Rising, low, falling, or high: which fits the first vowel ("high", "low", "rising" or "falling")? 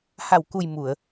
low